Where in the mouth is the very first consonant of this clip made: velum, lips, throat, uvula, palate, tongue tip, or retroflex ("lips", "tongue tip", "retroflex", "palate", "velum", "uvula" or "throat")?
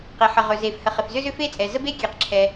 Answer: uvula